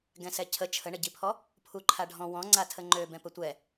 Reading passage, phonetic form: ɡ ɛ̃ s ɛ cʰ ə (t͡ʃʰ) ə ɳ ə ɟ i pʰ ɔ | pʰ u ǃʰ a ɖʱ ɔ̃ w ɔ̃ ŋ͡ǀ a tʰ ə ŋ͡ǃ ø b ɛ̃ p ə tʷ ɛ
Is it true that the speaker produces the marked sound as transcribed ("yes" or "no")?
yes